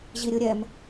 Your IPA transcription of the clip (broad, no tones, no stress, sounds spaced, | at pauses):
ʑ i ɾʲ ɯ ɾʲ ɛ m